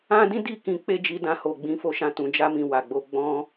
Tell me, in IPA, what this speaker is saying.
ã˦ d ĩ˦ d i˦˨ k ĩ˧ k͡p e˦ d͡ʒ i˧ d ã˧ h o˨ ɡ͡b ĩ˨˦ f o˧ ʃ ã˧ t ũ˨ d͡ʒ a˧ m ĩ˨ w a˨ ɡ͡b o˧ ɡ͡b ɔ̃˧

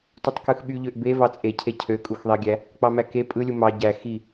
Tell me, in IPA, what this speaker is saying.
t u tˤ k ɯ x ɓ y ʎ ø ʔ b e v ɑ t͡sʼ e cʰ e cʰ ø kʼ u x ðˤ i ɡʲ æ | k͡p ɑ m æ k e pʼ ɯ lʲ u m ɑ ɟ æ x i

